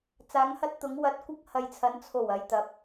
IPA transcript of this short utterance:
t͡s aː˨˧ ŋ h ɐ˧ t̚ t̪ ʊ˨˧ ŋ w ɐ˨˥ t̚ kʷ ɐ˧ k̚ h ɐ˨ j t͡sʰ ɐ˨˧ n t͡sʰ o˨˩ w ɐ˨ j t̪ ɐ˨˥ p̚

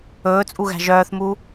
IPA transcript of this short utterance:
ɵː t͡sʼ u ɣ æ̤ ʒ œː θ m u

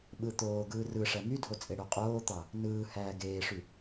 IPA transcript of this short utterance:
ɓ ɯ t̪ oː ɡ ɯː r ɯ ʂ æ m y dʱ o t͡sʼ e ɽ ø qʼ oː t̪ ɑ | n ɯː h æː ɡ eː ʂ y

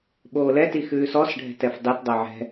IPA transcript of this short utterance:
ɓ oː l ɛ t i x ʉː s ɔ s ɖʱ ɛ̤ t ɛ f dˤ e t dˤ o ʕ ɛ̤

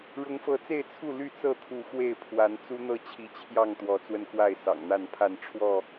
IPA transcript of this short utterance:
ɻ ʊ˨˦ ŋ f ɤ˨˦ t͡s e˥˨ ɪ̯ t͡sʰ u˥˨ l y˥˨ t͡s ɤ˥˨ t̪ʰ u˨˦ x w e˥˨ ɪ̯ pʰ w a˨˦ n t͡s u˦ n̪ ɤ˥˨ t͡ɕʰ i˨˦ t͡ɕʰ j ɑ˥˨ ŋ t̪ w ɔ˨˦ t͡s w ə˧ n k w a˥˨ ɪ̯ s ɑ̰˨˩ ŋ n̪ a˥˨ n pʰ a˥˨ n ʈ͡ʂʰ w ɔ˥˨

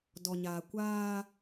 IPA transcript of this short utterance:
d ɔ˨ ɲ aː˨ kʷ aː˦

